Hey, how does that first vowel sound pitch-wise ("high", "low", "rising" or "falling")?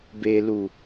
low